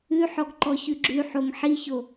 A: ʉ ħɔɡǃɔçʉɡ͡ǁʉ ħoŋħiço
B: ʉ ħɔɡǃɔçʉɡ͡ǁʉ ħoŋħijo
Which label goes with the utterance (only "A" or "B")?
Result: A